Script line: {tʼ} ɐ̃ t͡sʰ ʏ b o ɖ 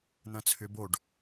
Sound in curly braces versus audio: incorrect: n̪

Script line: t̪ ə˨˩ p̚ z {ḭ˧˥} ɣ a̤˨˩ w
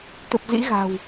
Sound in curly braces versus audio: correct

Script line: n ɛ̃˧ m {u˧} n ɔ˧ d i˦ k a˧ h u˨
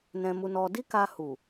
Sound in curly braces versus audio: correct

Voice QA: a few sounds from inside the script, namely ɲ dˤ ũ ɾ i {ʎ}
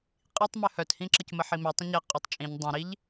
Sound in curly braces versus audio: correct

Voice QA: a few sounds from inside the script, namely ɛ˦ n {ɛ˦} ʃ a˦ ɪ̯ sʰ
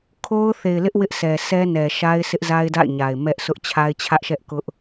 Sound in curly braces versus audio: incorrect: ɛ˨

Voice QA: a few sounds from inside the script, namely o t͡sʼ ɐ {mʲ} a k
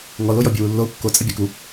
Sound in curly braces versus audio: incorrect: bʲ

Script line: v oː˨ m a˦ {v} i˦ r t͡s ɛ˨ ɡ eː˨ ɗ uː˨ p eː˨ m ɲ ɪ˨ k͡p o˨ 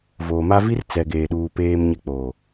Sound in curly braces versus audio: correct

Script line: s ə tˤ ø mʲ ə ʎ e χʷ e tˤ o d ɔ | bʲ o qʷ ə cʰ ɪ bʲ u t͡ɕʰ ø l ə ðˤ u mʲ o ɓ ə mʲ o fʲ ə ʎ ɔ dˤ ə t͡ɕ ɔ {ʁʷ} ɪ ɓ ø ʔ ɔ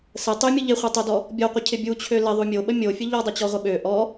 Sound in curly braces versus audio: correct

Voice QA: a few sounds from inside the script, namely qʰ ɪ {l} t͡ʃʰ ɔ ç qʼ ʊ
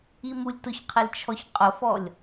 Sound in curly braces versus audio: correct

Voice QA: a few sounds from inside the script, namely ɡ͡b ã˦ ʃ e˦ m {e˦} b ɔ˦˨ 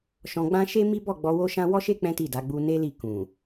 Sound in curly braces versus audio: incorrect: i˦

